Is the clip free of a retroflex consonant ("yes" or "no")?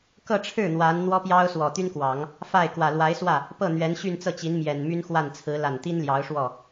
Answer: no